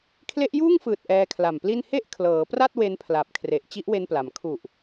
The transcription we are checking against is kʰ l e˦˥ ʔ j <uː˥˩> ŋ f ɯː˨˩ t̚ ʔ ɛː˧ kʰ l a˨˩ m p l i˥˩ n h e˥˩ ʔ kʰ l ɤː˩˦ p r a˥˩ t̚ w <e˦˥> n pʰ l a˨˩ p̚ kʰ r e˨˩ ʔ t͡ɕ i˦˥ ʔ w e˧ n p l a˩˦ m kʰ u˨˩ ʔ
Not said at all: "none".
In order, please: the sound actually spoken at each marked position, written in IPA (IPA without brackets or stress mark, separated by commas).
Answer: uː˥˩, e˦˥